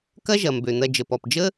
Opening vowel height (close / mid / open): open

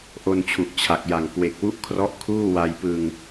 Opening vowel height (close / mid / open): mid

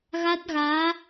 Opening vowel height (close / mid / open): open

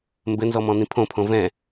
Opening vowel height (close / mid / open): mid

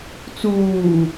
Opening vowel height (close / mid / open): close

